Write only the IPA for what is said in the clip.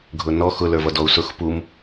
ɡʱ ʊ n ɔ x ʊ l ə˞ v ʌ d ɔ u̯ s ʊ x p u m

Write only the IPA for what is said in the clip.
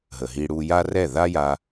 ɦ ə˨ ɦ i˧ ɽ u˧ j a˦ r ɛ˦˨ ð a˦ j a˧

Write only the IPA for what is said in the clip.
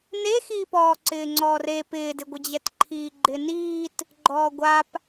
n e x iː p ɔː ǀ ɪː ŋ͡ǀ ɔː r e p ɪː d ɪ ɡʷ ɪ d͡ʑ ɛ t ǃʰ iː ɡ͡ǃ ɪ n iː t | ɡ͡ǃ ɔː ɡʷ a p

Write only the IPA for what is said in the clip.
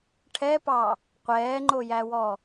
ʈʰ ɛ p ɑ | qʷ ɛː ŋ͡ǃ o j æ w ɔ

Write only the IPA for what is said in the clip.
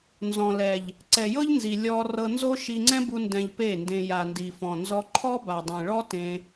n z ɔ̃˨ l ɛ˨ ʎ | ǀ ɛ˨ j ɤ˦ ʎ n z i˨ lʲ ɔ˧ r ɤ˧ n z o˦ ʃ i˧ ŋ͡ǀ ɛ̃˦ b u˧ n d ɛ̃˧ ʎ p e˦˨ n d ẽ˧ j a˨ n d i˨ f ɔ̃˨ n z ɔ˧ ǃʰ ɔ˦ b a˨ dˤ ẽ˨ ɭ ɔ˦ t ẽ˧

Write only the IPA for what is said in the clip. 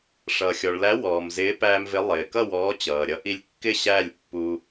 ʂ ʌː˩ xʲ ɔ˩ ɭ l æ˨˥ w ɔː˩ m z ɪː˨˥ p æː˧ m v ɪ˨˥ lˠ ɪː˩ k ʌ˥˨ w ɔː˨˥ t͡ɕ ʌː˩ ɾʲ ʌ˨˥ ʔ i˧ lʲ kː ɪ˥˨ ɕ æ˥˨ lʲ pː u˧

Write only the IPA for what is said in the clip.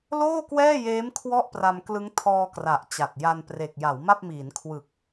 l oː˥˩ k w ɛː˥˩ j eː˦˥ m kʰ w ɔ˥˩ ʔ p r a˧ m k l ɯ˦˥ ŋ tʰ ɔː˧ k r a˨˩ ʔ t͡ɕ a˨˩ t̚ j a˧ n p r e˨˩ k̚ j a˩˦ w m a˥˩ p̚ m iː˩˦ n kʰ w ɯ˨˩ k̚

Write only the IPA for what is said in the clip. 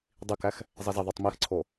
dˤ i k æ x | zˤ i z e ðˤ u tˤ m i x ǀʰ o

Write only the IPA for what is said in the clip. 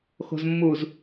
x o̤ z mː u z

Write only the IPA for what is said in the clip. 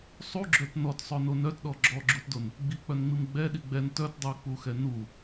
sˤ u ɡ͡ǁ œ t n ɔ t sˤ œ n o n œ t ɗ ɔ ɡ͡ǁ ɔ ɡ͡ǁ u t d o n | ɡ͡b i k͡p œ n ŋ͡m i m ɡ͡b ɛ ɗ i ɡ͡b ɛ n t œ t dˤ u k͡p u x ɛ n u

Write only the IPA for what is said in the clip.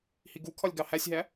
h i ɡ u kʰ ɒ lʲ ɡ ɑ h æ sʲ ɦ æ

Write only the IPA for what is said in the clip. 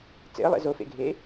t͡s ḛ ə̯ lˠ ḛ z o f ḛ ɡʱ eː

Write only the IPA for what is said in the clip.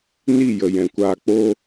n i˦˨ j ə˨ j ɛ̃˨ kʷ aː˧ k͡p o˦

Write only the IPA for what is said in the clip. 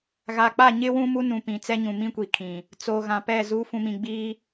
ɣ a˨ k͡p a˦˨ ɲ ɪ˦ w ũ˦ m u˦ n ũ˨ p ĩ˨ t͡s ɛ˦ ɲ ũ˨ m ĩ˦ kʷ i˨ kʰ ĩ˨ | t͡s o˨ ɣ ã˨ p ɛ˦˨ z u˨˦ f ũ˨ m ĩ˨ ɡ͡b iː˦

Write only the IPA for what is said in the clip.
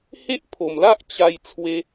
h e˦ ʔ pʰ o˨˩ m l a˦ ʔ t͡ɕ a˧ j t͡sʰ w e˧

